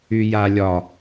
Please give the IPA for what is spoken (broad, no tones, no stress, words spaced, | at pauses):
yjalʲɒ